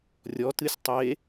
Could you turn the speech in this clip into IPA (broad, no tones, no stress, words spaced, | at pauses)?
rʲɔtɨsʲ tˤe